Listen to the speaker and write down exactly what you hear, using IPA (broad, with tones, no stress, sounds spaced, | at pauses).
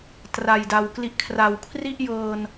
t r a˨˩ j d a˨˩ w k l i˦˥ ʔ kʰ r a˨˩ w kʰ r i˥˩ ʔ j ɤː˧ n